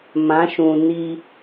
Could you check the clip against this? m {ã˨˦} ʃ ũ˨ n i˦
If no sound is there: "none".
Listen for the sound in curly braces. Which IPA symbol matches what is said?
ã˨˦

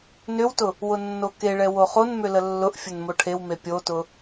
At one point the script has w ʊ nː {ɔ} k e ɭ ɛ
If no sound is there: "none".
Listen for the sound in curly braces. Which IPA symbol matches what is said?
o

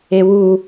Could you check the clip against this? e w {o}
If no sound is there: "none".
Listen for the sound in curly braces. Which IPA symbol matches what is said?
u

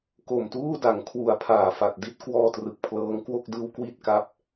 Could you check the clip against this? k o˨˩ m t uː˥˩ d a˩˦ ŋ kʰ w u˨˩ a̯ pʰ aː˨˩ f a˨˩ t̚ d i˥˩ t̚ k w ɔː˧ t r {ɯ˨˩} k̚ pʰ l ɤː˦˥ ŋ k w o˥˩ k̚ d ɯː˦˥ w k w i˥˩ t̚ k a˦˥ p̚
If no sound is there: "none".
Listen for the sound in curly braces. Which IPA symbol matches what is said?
ɯ˨˩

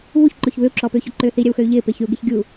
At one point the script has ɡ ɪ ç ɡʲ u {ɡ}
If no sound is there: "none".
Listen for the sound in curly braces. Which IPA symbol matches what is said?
none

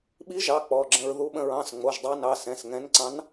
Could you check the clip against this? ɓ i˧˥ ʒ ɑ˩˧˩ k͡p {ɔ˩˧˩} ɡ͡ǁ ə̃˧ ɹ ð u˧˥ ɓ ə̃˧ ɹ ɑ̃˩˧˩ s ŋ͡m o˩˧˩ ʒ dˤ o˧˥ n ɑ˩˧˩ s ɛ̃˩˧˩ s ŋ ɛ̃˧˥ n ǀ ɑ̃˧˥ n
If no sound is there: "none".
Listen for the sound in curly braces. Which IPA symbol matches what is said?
ɔ˩˧˩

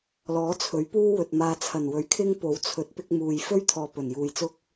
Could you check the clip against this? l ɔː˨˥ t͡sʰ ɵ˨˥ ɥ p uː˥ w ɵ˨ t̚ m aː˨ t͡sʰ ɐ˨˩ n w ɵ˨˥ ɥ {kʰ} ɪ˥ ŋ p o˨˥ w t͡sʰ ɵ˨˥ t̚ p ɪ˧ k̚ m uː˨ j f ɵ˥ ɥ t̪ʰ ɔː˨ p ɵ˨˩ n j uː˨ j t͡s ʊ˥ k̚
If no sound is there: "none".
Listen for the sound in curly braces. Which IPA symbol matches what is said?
kʰ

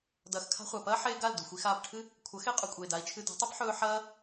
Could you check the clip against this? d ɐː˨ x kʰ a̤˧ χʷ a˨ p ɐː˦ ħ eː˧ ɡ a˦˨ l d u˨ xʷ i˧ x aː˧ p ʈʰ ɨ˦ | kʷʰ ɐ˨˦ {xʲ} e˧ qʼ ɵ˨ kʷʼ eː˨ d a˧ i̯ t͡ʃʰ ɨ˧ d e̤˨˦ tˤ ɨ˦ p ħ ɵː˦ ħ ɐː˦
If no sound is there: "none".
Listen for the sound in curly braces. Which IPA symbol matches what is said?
x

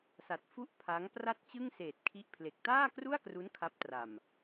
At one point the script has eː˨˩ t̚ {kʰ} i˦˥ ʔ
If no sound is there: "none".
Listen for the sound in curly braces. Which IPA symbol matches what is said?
kʰ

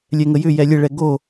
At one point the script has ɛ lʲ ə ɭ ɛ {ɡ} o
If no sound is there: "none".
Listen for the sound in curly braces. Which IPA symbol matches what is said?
ɡ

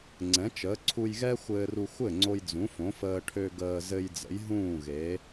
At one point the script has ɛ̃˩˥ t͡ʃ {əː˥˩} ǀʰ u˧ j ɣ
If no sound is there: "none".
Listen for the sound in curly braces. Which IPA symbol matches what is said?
əː˩˥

